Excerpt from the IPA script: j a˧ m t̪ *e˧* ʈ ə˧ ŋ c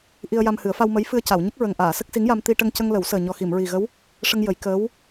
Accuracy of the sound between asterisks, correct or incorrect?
incorrect